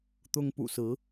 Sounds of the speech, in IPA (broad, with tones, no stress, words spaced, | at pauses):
t̪ʊ˥ŋpṵ˨˩sɹ̩˧˥